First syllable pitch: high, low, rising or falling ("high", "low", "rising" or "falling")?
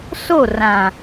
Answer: falling